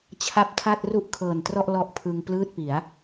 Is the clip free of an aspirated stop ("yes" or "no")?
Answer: no